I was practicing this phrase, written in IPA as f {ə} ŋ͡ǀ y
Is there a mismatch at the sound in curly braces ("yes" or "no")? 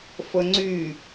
no